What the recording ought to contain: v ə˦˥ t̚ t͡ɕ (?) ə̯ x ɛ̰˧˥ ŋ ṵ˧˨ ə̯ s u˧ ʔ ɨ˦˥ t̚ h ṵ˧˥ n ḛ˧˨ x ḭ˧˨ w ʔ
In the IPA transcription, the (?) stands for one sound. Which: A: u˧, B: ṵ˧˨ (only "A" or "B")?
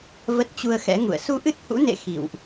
A